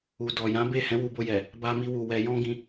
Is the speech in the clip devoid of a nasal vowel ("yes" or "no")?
no